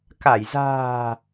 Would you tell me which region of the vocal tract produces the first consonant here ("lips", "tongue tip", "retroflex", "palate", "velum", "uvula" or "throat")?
velum